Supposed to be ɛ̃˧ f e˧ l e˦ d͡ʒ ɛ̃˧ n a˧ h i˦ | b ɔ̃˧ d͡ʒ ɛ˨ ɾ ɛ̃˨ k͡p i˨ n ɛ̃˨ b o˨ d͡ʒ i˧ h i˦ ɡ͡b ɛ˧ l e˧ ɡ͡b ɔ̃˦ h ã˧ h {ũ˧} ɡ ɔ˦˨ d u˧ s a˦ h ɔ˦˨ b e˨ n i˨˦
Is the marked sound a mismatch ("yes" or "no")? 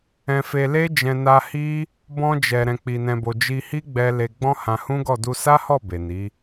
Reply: yes